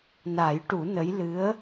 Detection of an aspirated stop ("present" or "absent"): absent